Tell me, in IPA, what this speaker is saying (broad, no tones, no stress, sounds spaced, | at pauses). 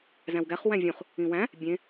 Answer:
z æ̃ w ɡ æ χ w æ̃ vʲ ũ χ | ĩ w æ̃ | bʲ ẽ